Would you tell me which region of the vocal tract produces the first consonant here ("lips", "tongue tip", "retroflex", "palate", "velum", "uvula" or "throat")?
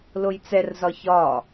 tongue tip